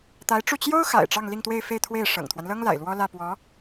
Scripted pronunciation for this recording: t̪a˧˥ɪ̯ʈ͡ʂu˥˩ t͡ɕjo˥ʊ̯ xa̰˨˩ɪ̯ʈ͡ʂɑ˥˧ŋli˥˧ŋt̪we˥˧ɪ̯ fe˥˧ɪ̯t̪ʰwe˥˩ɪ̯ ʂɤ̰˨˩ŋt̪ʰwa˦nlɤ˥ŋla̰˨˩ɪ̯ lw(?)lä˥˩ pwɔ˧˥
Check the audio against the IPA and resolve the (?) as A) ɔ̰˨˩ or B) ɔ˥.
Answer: B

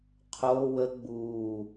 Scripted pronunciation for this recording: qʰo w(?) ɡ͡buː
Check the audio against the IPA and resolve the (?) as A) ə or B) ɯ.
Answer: A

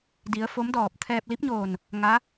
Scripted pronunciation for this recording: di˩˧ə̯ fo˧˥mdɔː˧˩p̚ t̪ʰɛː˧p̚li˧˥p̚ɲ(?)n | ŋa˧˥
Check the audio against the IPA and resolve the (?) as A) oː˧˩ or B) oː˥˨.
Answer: A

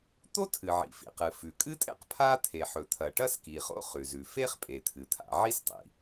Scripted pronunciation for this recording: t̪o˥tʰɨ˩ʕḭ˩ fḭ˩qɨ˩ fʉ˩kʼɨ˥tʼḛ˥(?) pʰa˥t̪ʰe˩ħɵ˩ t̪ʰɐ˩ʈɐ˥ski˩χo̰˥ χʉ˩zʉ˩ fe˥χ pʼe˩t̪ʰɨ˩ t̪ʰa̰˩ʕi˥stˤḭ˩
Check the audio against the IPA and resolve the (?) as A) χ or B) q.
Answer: B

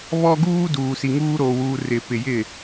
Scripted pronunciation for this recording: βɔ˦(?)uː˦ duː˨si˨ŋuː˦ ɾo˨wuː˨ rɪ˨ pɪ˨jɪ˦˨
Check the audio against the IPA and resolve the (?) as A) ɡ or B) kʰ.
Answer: A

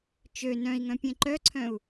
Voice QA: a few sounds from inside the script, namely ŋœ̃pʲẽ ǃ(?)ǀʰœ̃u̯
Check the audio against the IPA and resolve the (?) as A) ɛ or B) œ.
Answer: B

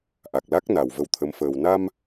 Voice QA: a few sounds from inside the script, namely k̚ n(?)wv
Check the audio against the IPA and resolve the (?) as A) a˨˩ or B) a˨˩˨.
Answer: A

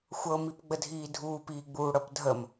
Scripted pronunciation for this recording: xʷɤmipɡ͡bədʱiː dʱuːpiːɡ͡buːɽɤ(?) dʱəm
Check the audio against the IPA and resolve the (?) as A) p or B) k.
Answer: A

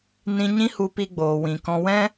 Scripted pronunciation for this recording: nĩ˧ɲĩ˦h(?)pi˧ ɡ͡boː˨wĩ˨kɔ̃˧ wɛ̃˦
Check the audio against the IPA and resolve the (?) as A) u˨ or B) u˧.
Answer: B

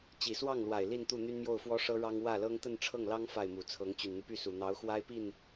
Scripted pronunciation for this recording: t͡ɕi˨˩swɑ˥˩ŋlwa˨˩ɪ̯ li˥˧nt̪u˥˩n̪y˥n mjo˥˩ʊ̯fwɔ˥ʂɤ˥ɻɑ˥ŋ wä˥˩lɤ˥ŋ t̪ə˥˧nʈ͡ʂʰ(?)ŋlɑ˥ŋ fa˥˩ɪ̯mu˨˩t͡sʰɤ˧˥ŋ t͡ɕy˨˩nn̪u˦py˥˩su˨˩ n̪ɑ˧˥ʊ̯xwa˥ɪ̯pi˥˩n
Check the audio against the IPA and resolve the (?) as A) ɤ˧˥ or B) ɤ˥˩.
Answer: B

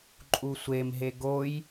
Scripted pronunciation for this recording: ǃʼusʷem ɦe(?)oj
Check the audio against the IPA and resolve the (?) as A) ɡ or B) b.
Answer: A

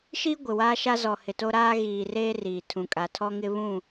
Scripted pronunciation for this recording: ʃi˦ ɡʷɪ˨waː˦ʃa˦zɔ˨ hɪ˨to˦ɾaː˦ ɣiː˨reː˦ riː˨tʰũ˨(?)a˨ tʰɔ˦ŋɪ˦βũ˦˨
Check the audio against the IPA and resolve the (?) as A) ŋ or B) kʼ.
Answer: B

